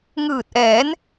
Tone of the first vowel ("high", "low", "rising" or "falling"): low